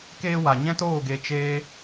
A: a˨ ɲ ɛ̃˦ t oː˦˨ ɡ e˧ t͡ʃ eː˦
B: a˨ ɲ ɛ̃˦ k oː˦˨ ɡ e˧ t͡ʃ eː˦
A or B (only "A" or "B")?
A